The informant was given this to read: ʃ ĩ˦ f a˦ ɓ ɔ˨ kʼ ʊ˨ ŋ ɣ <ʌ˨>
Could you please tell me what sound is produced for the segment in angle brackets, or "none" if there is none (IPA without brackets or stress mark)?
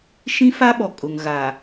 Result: a˨